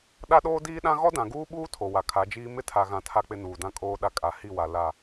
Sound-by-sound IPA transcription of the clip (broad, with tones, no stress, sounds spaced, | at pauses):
ɗ a˦ ɗ oː˦ d iː˦ ɗ ã˦ ɣ ɔ˦ d ã˨ ɡ uː˦ ɓ uː˦ tʰ o˨ w a˨ kʰ a˨˦ d͡ʒ iː˦ m ɪ˦ tʰ a˨ ɣ ã˨ tʰ a˦ k͡p ɪ˦ n uː˨ d ã˦ kʼ oː˦ ɗ a˦ kʼ a˨ h i˦˨ w a˨ l a˦˨